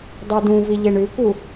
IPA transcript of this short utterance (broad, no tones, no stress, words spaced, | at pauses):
dˤɨdũvi ʎeɳʉku